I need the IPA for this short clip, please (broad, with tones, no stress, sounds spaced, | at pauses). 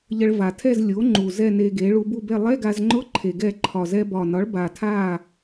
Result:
ʎ ə˧ ɭ v a˨˩ tʰ ɛ˥˨ z lʲ o˩˥ ŋ͡ǃ u˨˩ z ɛ˥˨ n e˧ ɡ e˩˥ ɭ u˧ b u˥˨ b ɛ˥˨ lˠ ɛ˧˥˧ ɡ a˧ z ŋ͡ǃ ʊ˧˥˧ ǃʰ e˧ ɡ ɛ˥˨ ǃʰ ɒ˨˩ z ɛ˧ b ɒ˨˩ n ɒ˩˥ ɭ b a˨˩ tʰ a˥˨